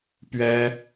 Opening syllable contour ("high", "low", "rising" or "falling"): high